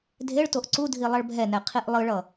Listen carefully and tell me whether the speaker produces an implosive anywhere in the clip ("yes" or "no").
no